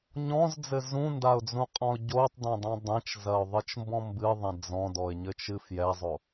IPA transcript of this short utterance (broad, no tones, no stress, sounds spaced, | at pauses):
ɲ ɔ̃ z d͡z ɘ z ũ n d a ʊ̯ d͡z ũ qʼ ɔ̃ ʊ̯ ɟ o tˤ d ɛ̃ dˤ ẽ dˤ ẽ t͡ʃ z ɐ ʊ̯ ðˤ ɨ t͡ʃ m b ɔ̃ m b ɨ ðˤ ẽ d͡z ɔ̃ d ɔ ɪ̯ ɲ ɘ t͡ʃ ɨ f j ɛ zˤ o